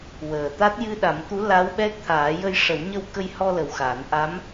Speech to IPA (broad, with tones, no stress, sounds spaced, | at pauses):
w əː˨˩ t̪ a˦˥ t̚ j ɨ˧ ɗ a˨˩˦ m t̪ u˧˥ l a˧˥ w ɓ ɛ˦˥ k̚ t̪ʰ aː˨˩˦ j ə˧ j ʂ ə˨˩˦ w ɲ ə˧ w k ə˧ j h ɔ˧ l ə˨˩ w x a˨˩˦ n ʔ a˧˥ m